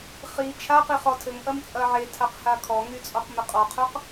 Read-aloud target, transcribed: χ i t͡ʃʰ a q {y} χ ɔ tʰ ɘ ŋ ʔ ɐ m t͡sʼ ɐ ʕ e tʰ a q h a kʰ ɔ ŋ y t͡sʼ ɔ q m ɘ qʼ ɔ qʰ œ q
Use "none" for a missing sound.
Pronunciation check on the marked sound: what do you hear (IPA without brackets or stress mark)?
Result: i